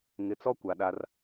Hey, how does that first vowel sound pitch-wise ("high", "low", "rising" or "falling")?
rising